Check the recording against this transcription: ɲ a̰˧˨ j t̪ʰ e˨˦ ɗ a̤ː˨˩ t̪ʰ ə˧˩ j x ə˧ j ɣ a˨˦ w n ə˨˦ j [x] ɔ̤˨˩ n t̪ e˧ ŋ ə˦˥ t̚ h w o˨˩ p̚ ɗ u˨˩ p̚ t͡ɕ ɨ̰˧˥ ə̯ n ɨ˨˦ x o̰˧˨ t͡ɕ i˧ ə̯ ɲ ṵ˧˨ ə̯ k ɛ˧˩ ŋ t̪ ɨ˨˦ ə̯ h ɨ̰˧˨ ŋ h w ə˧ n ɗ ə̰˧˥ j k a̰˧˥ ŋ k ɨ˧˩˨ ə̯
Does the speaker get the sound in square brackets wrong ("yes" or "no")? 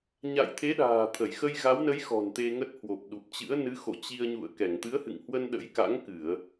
no